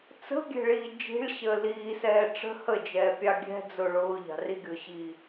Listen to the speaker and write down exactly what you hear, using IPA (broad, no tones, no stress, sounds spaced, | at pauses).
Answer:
t͡s ə̤ ɡʲ ɛ̤ ɭ iː d͡ʒ i̤ ɭ ɕ əː l iː s ɛː ʈ͡ʂ ə̤ h ə d͡ʒ ɛː pʲ ɑ ɡʲ ɛ̤ d͡z ʊ ɭ ʊː ʎ ɑ̤ r i ɡʲ ʊː ɕ iː